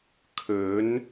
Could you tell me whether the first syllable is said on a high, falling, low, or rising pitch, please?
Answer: rising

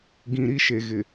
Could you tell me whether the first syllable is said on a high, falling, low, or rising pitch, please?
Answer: low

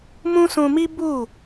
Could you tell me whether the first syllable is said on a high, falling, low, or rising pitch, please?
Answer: high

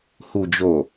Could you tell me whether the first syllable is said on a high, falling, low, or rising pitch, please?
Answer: low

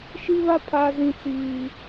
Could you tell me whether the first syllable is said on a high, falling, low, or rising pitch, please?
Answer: high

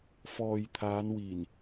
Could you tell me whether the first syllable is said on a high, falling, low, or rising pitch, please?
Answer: low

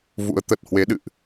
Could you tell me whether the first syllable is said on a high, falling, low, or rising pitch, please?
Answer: rising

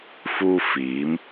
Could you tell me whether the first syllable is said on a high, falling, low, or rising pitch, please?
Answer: high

